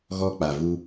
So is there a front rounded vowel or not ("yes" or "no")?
no